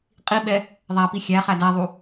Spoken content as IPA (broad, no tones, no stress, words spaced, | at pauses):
qʼiɓɛ | ðˤæpi xʲæχæ dæðˤu